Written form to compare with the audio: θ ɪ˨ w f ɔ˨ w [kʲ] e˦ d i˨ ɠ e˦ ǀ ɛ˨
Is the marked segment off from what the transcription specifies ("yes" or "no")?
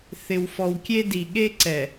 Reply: no